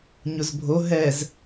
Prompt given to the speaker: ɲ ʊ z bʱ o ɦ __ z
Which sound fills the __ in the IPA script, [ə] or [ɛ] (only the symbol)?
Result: ɛ